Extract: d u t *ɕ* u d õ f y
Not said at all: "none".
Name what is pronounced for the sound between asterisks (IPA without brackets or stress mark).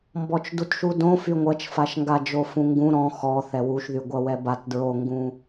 ʃ